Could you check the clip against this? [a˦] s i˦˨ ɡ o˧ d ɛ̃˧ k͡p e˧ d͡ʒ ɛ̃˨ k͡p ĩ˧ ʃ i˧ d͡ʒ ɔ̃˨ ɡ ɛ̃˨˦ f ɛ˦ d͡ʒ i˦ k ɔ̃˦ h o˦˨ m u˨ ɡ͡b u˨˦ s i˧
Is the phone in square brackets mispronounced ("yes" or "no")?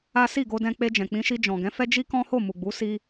no